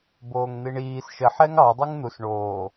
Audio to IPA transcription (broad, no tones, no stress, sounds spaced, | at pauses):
b oː ŋ n̪ i ɳ iː s ʃ ə ħ ɛ ŋ ɑ dˤ o ŋ n̪ u s ɳ oː